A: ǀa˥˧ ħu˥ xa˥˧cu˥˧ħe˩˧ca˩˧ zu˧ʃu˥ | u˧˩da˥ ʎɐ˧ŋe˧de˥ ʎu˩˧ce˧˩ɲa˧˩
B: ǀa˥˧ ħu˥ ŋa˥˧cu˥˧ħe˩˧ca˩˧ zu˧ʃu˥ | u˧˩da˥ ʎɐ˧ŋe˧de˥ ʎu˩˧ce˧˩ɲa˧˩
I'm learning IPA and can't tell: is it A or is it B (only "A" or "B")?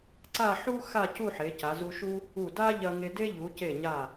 A